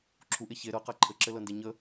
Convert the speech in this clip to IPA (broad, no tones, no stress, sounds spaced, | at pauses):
ǁʰ u ʔ e ç e ɾ ɤ q a ǃʰ ɘ ǁ ɘ l ɤ n d e ɲ ə